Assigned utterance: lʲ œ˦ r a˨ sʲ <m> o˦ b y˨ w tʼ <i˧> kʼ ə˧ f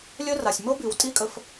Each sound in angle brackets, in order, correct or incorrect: correct, incorrect: i˦

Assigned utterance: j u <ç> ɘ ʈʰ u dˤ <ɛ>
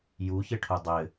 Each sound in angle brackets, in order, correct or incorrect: correct, incorrect: ɘ

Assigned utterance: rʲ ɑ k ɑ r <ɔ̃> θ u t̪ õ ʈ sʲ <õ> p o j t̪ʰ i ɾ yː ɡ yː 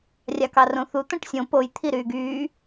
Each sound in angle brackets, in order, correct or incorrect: incorrect: õ, correct

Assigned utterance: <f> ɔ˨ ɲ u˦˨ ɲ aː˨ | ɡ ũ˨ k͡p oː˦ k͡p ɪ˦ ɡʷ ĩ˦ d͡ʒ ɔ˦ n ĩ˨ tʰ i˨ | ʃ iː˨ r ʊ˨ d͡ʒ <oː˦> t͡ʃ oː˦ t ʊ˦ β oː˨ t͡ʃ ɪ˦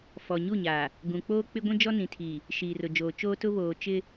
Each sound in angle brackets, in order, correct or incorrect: correct, incorrect: oː˨

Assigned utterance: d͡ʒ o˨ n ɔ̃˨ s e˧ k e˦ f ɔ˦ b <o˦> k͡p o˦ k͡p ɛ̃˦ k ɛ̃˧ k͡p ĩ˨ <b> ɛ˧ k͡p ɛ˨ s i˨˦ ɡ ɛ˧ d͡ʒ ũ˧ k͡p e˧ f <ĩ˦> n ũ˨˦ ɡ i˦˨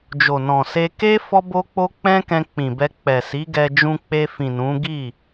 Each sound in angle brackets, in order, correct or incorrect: correct, correct, incorrect: ĩ˨

